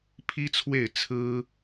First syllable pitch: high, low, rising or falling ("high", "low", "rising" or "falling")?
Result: high